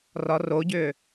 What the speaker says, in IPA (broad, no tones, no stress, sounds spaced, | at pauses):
r ɒ r o ɟ ʏː